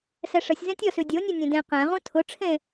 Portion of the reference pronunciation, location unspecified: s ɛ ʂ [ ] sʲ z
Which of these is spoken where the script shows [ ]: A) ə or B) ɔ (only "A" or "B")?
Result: A